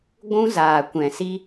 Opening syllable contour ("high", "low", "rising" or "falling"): high